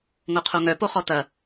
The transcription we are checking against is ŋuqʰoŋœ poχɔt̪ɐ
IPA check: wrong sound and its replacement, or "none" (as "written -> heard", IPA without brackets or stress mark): u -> o